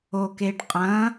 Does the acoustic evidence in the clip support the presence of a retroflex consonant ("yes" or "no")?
yes